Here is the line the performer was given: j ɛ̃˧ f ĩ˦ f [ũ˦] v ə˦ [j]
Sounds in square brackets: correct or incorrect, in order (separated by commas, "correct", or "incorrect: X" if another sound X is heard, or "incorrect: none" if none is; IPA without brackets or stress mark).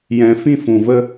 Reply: incorrect: ũ˨, incorrect: none